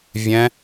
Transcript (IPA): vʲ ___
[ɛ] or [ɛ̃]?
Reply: ɛ̃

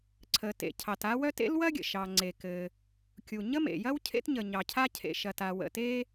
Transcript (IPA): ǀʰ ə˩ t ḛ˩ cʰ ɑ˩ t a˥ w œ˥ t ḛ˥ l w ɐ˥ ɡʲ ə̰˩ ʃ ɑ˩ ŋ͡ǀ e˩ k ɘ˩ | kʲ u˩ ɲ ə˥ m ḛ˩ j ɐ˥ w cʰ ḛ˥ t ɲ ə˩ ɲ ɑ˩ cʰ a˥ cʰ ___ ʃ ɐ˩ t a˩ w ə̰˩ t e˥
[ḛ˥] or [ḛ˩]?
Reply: ḛ˩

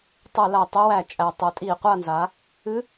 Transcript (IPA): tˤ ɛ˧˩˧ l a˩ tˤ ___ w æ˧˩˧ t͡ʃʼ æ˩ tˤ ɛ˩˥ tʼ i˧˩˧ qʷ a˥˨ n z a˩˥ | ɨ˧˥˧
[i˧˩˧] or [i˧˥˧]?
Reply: i˧˥˧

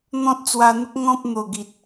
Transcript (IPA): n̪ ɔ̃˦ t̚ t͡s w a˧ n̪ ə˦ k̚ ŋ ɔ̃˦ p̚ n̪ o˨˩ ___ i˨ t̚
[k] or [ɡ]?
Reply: ɡ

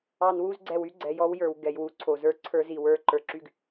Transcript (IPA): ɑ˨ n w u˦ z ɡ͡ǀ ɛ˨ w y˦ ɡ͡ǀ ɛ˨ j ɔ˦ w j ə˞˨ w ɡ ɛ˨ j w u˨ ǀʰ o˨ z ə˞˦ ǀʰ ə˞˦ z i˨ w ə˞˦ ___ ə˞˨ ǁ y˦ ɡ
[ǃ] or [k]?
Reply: ǃ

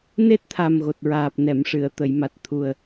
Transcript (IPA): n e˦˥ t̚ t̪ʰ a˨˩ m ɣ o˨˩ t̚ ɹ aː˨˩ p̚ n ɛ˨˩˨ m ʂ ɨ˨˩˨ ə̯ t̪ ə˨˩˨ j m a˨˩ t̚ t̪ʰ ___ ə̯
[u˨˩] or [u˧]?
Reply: u˨˩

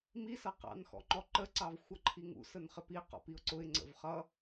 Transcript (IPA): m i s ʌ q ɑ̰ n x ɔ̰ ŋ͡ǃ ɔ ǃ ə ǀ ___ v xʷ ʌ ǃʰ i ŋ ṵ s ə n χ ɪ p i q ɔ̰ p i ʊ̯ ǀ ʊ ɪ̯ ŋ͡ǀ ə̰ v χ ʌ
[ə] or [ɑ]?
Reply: ɑ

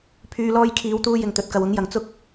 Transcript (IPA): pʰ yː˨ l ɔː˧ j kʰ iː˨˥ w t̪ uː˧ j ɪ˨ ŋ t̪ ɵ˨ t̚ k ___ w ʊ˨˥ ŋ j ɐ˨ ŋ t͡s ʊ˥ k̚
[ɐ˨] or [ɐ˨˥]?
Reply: ɐ˨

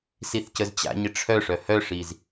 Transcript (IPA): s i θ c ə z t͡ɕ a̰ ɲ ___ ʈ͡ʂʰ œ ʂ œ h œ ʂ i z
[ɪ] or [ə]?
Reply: ɪ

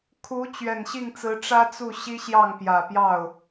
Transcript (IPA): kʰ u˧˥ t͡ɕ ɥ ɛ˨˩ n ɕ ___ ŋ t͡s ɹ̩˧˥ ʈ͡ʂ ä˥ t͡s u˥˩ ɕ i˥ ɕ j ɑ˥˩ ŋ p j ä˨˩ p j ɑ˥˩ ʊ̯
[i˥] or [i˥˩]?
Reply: i˥˩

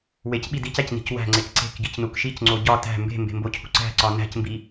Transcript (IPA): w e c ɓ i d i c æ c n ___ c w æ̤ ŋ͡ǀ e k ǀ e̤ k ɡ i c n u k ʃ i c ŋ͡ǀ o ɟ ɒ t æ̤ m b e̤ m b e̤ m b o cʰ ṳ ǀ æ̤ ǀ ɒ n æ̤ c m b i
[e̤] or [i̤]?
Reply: i̤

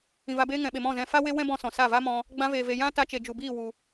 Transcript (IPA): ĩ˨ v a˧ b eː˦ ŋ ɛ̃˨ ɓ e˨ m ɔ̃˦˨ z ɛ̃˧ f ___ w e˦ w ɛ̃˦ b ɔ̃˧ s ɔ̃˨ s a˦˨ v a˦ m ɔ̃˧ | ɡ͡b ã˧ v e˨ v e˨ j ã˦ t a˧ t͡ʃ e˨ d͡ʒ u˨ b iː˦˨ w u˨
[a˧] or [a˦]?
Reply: a˦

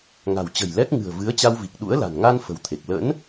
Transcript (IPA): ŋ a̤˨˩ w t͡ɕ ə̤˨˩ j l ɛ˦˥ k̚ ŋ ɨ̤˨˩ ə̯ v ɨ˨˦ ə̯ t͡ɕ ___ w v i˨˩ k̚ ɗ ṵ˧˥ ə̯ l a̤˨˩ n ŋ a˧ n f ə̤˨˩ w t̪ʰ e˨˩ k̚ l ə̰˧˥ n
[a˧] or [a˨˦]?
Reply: a˧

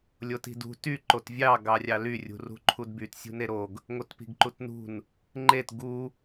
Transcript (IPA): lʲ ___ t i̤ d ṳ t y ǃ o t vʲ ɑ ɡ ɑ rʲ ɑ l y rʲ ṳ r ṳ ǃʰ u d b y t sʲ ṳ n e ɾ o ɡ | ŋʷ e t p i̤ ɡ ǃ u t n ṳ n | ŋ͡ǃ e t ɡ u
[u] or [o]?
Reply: o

